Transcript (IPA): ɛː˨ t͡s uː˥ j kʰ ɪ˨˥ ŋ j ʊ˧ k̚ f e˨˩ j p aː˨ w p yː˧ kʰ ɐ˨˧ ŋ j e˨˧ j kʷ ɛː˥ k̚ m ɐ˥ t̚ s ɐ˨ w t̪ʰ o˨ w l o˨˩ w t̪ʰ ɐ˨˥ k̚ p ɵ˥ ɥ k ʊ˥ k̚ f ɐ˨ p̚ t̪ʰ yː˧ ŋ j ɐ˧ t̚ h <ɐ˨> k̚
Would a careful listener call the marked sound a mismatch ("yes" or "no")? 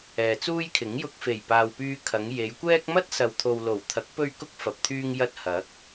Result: yes